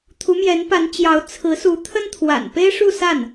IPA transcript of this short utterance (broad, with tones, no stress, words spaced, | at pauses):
t̪ʰu˧˥mjɛ˧˥n pa˧˥n t͡ɕjɑ˧˥ʊ̯ t͡sʰɹ̩˧˥su˧˥ t̪ʰə˥nt̪ʰwa̰˨˩npe˥ɪ̯ʂu˥˧ sa˥˩n